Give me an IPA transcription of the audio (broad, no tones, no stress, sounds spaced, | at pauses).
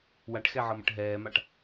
w a ʈ x ɛ ʕ ɤ m ə̰ ʈ ɦ ɛː m a ʈ